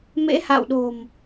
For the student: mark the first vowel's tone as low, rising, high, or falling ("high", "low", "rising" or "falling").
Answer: rising